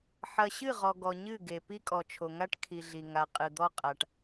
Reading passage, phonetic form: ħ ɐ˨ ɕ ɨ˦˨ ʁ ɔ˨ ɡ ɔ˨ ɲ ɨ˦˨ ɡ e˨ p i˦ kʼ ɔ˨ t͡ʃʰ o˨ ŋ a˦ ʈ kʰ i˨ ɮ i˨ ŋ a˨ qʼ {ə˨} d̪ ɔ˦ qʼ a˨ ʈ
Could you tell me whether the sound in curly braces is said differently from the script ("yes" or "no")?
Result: yes